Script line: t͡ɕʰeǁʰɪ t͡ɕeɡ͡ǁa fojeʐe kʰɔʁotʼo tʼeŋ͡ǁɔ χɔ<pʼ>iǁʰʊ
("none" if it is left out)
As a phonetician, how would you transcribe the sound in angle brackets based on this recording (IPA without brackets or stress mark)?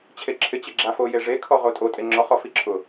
f